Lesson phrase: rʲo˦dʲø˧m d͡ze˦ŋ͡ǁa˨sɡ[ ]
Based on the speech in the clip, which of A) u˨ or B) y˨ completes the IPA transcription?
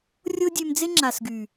B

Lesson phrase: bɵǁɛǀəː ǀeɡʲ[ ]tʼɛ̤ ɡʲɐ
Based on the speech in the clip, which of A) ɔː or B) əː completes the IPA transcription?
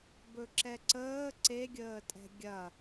B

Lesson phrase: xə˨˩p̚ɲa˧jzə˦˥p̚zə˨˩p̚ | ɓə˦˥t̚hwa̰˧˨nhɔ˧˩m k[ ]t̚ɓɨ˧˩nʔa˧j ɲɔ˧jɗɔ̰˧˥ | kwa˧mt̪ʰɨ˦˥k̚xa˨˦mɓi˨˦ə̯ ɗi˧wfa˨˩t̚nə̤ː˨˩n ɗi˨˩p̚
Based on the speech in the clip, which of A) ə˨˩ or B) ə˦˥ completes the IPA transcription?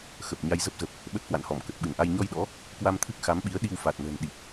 A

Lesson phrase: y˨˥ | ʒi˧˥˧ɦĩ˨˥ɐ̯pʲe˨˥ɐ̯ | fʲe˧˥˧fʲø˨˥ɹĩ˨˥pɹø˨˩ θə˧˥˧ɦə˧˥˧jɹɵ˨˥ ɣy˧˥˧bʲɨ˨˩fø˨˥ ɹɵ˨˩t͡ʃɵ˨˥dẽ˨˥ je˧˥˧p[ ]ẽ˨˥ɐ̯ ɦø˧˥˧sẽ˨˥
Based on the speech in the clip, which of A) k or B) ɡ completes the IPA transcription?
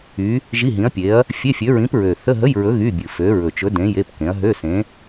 A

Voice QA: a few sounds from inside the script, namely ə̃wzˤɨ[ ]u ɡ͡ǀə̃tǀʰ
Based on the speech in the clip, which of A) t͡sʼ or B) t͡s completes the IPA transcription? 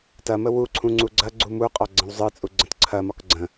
A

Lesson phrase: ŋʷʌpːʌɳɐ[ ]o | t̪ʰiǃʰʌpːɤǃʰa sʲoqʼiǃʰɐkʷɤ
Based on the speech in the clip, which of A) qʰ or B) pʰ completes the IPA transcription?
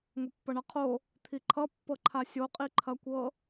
A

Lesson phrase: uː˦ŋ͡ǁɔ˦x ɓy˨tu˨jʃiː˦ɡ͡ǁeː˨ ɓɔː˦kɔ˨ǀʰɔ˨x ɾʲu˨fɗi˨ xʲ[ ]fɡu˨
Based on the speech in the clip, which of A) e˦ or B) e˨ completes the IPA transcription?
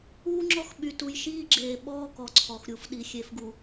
B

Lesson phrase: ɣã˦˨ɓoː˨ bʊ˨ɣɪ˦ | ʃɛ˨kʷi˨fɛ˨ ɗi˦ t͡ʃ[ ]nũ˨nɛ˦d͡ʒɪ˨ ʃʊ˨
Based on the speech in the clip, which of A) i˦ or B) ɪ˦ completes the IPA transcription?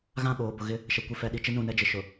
B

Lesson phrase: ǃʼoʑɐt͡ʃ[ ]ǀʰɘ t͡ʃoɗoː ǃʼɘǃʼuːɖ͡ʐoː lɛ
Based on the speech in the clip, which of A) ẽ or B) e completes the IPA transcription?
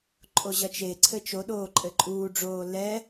B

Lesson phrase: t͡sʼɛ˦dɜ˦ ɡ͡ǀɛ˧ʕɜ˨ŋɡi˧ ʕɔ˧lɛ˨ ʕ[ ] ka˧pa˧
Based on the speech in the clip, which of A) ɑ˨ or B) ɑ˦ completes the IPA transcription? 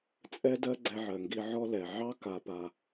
B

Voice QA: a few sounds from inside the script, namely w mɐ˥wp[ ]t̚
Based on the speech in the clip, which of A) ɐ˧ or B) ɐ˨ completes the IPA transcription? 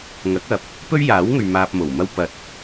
A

